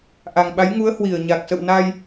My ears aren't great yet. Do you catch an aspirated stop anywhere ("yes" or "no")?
no